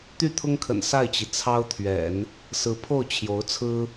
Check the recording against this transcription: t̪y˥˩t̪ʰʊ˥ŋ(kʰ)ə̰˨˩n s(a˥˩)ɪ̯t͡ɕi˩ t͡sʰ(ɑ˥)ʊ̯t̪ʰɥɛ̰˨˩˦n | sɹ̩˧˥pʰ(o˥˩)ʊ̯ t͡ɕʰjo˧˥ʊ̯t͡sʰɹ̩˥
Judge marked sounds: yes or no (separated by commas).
yes, yes, yes, yes